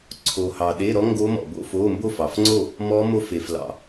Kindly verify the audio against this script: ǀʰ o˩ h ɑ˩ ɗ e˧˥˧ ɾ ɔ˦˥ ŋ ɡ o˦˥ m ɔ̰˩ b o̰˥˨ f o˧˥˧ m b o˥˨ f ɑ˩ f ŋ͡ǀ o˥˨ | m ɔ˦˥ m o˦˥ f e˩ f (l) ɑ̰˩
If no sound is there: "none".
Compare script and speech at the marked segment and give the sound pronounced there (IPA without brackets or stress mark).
l